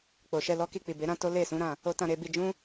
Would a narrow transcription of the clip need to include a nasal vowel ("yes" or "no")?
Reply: yes